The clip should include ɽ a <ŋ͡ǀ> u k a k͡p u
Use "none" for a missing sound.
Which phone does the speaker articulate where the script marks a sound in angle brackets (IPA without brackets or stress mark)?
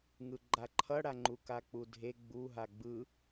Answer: ŋ͡ǃ